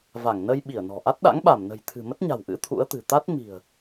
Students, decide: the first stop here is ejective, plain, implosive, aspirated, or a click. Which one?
implosive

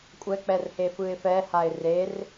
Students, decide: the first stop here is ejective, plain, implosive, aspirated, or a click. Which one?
ejective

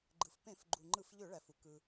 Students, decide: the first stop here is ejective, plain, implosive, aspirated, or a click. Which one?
click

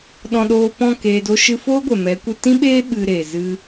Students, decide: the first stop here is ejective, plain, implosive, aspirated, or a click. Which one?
implosive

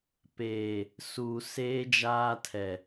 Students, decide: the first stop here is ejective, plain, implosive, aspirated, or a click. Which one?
plain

